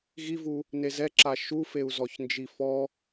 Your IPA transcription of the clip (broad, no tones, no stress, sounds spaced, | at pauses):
ɣ i v u | n e z ɛ ǁ a ʃ u f e u̯ z ɔ ç n d͡ʒ i f ɔ